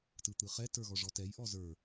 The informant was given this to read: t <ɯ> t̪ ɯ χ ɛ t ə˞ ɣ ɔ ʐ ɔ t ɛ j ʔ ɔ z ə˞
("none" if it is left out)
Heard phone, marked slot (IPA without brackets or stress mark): ɯ